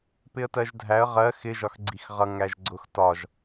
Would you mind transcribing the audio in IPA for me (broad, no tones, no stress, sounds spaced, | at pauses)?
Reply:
p ɪ ə̯ t ɜ ʒ dʱ æ ə̯ ʁ ɜ x ɪ ʒ ɒ x ɡ͡ǀ i x ʁ ʌ ŋ æ ʒ ɡ͡ǀ ʊ x t ɒ ʒ